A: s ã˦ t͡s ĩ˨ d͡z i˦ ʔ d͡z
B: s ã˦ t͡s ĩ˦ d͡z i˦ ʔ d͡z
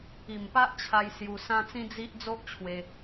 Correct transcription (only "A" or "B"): B